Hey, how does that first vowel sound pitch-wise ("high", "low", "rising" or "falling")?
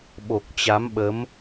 low